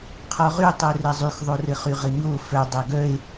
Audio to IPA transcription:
qʰ ɔ ʁ y tˤ œ r ɛ zˤ y x ðˤ o r ɘ χ y ʁ ɘ ɲ o f œ dˤ ɛ ɡ œ e̯

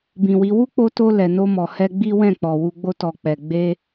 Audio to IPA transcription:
b ĩ˨ w i˨˦ w u˦ k͡p o˧ t o˧ l ɛ˨ n o˧ m ɔ˨ h ɛ˧ ɡ͡b i˦ w ɛ̃˦˨ k͡p ɔ˨ w u˧ ɡ͡b o˧ t ɔ˨ k͡p ɛ˨ ɡ͡b e˧

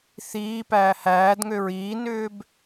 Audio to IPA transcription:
θ iː p æː h æː d ŋ ø ɹ iː n ʏː b

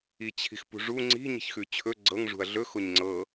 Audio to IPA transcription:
i t͡ɕʰ i̤ x p ṳ ʐ u ŋ͡ǀ i̤ ɲ i̤ ç x ʉ t͡ɕʰ ɵ ɡ͡ǀ ɤ ŋ ʐ ṳ ɐ̯ ɮ ɵ x o ɲ ŋ͡ǀ ɤ

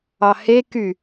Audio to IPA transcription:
ɑ h e k y

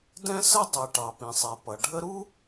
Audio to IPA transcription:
d ɛ̃˥ s ə˥ dˤ ɛ˩ ʈ ɑ˩ p ĩ˩ sˤ ɛ˩ p ʌ˩ ɖʱ ə˥ ɾ u˥

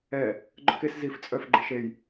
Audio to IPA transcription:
ɛ | ɡ͡ǃ œ k e s z i f t͡sʼ œ f ɡ͡ǃ e ʃ e j

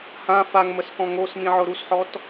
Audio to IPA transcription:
h ã f a ŋ m ə s k ɔ̃ ŋ o s m ĩ ʕ ʊ ɾ u s ħ ɔ t

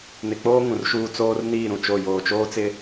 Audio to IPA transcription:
n ɪ˨ k͡p oː˦ ŋ ũ˨ r ʃ uː˦ t͡s oː˦ r n iː˦˨ ɾ ũ˨ t͡ʃ o˦˨ j oː˨ t͡ʃ oː˦ t͡s ɪ˦

